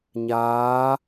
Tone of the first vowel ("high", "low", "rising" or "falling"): rising